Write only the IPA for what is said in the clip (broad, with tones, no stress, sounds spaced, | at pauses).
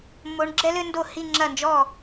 mː o˧˥ ɳ ɡ͡ǁ ɛ˥ l ɘ˥ n d o˥˩ h i˥˧ ŋ͡ǁ ɐ˥˩ n d͡ʒ ɔ˥˩